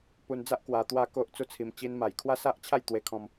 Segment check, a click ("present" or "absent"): absent